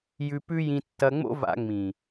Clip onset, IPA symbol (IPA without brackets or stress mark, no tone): j